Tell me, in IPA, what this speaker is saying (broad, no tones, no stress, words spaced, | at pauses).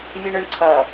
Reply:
vʲuɳʊɳǀʰʌ